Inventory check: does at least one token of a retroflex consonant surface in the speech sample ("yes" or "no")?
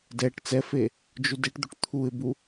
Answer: yes